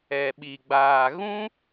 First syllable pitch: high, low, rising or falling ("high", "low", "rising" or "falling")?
low